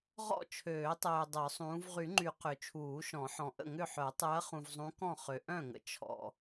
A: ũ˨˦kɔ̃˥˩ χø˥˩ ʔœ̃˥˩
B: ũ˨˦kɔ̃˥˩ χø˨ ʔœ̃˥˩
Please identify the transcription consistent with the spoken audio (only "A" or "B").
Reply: B